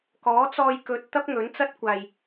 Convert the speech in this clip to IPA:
k ɔː˨˥ t͡s ɔː˧ j k ɵ˧ t̚ t̪ ɐ˥ p̚ ŋ ɵ˨˥ n t͡s ɐ˥ t̚ kʷ aː˧ j

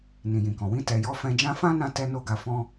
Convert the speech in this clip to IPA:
n ĩ˨ j ĩ˨ k ɔ̃˨ w ĩ˧ t ɛ˨ j ɔ˨˦ f ɛ̃˧ d͡ʒ ã˦ f ã˦ n ã˧ t ɛ˧ n o˧ ɡ a˨ f ɔ̃˧

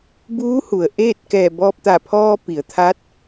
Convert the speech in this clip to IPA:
b uː˧˥ h u˩ ə̯ ʔ eː˥˨ t̚ k ɛː˧˩ b ɔː˧ p̚ t̪ a˧˩ pʰ ɔː˧ p i˩˧ ə̯ t̪ʰ a˧˥ t̚

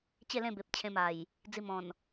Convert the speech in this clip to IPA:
t͡ɕ e˥˧ l ẽ˥˧ b e˨ p̚ t͡ɕʰ ẽ˧ m a˨˩ j | d͡z i˧ m ɔ̃˨˩ n

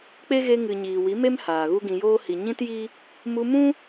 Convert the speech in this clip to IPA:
k͡p e˦ ɣ e˧ ŋ ɨ˨ ɲ iː˨ w i˨˦ m e˦ m h aː˨ ɣ u˦ ɡ ĩ˧ j oː˦ h i˨ ɲ ĩ˦ t j i˦ | m u˧ m ũ˦

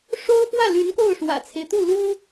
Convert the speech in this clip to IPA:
ʂ o˥ ʊ̯ f w ä˥˩ l y˧˥ n k o˥˩ ʊ̯ ʂ w ä̰˨˩ t͡sʰ e˦ ɪ̯ t̪ u˥˩ l u˥

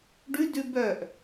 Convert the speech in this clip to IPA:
ɖ ʉ d ʉ b œ ʔ

